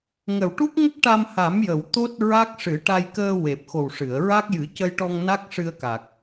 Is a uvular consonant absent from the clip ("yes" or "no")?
yes